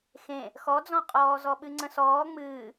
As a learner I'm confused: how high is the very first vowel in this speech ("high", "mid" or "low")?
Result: mid